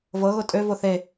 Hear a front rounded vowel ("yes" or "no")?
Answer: yes